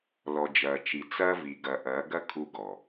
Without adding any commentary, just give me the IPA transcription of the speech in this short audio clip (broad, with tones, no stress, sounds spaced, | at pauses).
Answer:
l ɔ˨ d͡ʒ ɐː˨ t͡ʃ i˨ t͡s ɐː˦ v i˨ ɡ ɐ˨ ʔ ɐː˨˦ ɡ ɐ˦ kʰ u˦ ɡ ɔ˨